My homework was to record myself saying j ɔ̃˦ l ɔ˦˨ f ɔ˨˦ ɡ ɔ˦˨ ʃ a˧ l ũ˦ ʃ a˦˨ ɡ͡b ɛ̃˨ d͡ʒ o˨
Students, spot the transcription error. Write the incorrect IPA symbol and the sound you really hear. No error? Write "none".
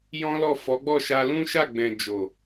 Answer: ɡ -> ɡ͡b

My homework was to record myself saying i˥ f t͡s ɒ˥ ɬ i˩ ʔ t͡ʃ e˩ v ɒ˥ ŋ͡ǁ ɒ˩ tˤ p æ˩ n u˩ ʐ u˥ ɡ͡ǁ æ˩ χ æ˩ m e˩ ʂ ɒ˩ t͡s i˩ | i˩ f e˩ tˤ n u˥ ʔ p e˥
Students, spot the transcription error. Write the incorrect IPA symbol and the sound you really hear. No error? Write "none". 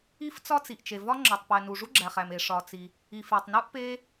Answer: ɬ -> t͡s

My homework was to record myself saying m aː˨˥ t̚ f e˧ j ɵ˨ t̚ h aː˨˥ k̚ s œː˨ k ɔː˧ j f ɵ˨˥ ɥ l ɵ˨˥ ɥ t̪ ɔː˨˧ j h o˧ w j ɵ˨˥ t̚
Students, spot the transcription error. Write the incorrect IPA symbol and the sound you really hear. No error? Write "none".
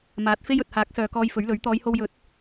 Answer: e˧ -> e˥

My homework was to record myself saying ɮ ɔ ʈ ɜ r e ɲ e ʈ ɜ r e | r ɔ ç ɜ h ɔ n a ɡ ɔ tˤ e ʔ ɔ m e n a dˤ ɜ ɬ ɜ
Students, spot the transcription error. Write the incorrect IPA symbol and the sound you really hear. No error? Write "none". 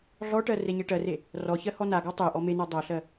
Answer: none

